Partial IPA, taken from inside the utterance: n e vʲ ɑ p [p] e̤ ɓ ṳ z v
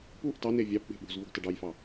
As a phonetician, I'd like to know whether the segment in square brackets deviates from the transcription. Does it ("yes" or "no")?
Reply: yes